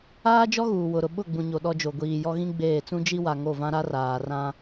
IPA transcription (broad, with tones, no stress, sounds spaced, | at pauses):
aː˦ d͡ʒ ɔ˦ ɣ uː˨ w ʊ˨ ɾ ʊ˨ ɓ ʊ˦˨ ɡ͡b ũ˨ ɲ o˨ ɗ ɔ˦ d͡ʒ o˨ ɡʷ iː˨ j ɔ˦ ɣ ĩ˦ ɡ͡b eː˦˨ t͡s ũ˦ d͡ʒ i˦ w a˨ ŋ o˦˨ v ã˦ ɾ a˦ r aː˨ r ã˦